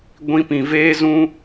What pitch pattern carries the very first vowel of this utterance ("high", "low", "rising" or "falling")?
high